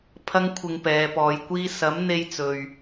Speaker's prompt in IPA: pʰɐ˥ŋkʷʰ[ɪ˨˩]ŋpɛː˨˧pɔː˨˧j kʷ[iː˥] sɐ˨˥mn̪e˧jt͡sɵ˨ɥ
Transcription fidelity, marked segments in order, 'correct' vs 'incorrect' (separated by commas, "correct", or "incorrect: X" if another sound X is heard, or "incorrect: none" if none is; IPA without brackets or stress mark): incorrect: ɪ˧, correct